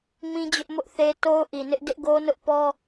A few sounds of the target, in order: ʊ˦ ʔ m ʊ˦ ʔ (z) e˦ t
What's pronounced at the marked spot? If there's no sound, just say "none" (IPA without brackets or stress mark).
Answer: θ